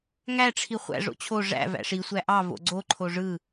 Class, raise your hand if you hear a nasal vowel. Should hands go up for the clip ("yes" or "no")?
no